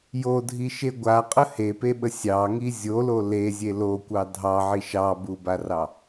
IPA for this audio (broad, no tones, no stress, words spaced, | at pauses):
jodʱiʃe ɡʷaqʼə hepeɓə sʲɑŋi zʲolo lezʲe lokʷɑ dʱɑʕi ʃɑbubarɑ